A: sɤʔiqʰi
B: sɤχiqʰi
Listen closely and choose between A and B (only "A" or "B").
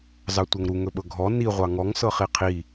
B